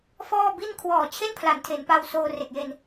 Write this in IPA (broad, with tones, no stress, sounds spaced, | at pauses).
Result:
f ɔː˥˩ b i˥˩ n kʰ w ɔː˨˩ t͡ɕʰ e˥˩ n pʰ l a˩˦ n tʰ e˩˦ n p a˧ w s oː˧ r e˨˩ k̚ j e˧ n